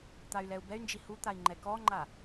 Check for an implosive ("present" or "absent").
absent